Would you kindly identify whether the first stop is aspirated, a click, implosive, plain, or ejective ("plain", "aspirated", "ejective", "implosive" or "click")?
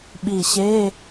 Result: implosive